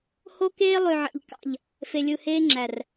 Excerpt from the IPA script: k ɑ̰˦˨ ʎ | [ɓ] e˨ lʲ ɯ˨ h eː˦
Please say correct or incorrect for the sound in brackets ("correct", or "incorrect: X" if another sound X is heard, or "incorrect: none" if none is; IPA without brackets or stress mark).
incorrect: f